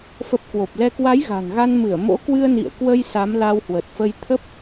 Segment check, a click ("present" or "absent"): absent